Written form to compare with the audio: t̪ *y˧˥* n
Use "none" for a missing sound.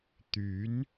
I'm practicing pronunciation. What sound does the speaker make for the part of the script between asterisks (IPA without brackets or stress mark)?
y˧˥